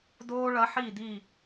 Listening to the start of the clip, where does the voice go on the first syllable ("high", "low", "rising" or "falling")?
high